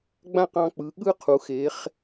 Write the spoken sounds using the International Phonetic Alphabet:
ɡ͡b ã˥˧ q ɑ̃˧ k͡p ɯ˩˧ ɠ ɯ˥ qʰ u˩˧ x e˩˧ χ

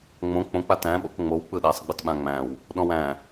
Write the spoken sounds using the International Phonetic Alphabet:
ŋ͡m õ k͡p õ k͡p a t æ̃ ɓ o̰ k ŋ͡m o w k͡p ɯ ɗ æ sˤ ɡ͡b ɯ t ɓ ã ŋ͡m æ̃ w | ɗ ɔ̃ w æ̃

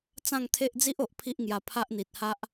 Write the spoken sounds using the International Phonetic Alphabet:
t͡s ã˥˧ ŋ t̪ʰ e˦ ʔ d͡z i˦ ʔ o˨ ʔ pʰ i˦ ʔ ŋ j a˧ pʰ a˦ ʔ n̪ i˨ t̚ h a˦ ʔ

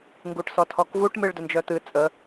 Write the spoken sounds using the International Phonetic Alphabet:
ŋ ɡ u ʈ s ɔ tʰ ɔ k v u ʈ m ɨ ɭ d ɵ n d͡ʒ œ t̪ ɨ t͡sʼ ə

